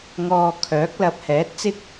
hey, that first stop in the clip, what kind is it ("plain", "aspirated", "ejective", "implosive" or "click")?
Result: aspirated